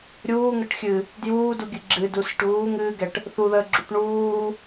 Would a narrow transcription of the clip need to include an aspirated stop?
no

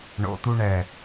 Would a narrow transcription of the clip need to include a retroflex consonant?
yes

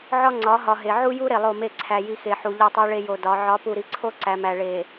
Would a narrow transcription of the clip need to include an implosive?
no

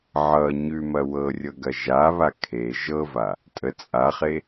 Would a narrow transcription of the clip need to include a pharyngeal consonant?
yes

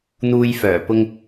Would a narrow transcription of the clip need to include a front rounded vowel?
yes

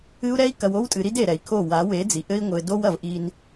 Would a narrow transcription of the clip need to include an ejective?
yes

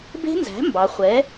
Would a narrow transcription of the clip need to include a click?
no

